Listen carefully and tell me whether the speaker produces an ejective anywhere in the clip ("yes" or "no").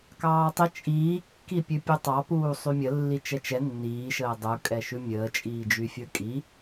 yes